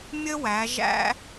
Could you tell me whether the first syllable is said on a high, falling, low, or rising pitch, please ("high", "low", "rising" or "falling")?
high